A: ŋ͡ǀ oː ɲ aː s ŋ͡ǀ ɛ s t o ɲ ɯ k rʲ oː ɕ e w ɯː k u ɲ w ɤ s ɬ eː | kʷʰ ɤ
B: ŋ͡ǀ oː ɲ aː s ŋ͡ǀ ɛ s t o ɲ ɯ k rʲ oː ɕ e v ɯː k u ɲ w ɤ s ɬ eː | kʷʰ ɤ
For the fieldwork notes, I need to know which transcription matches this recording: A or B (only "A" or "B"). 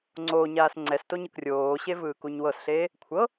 B